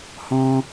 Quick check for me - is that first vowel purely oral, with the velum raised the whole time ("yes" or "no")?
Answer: no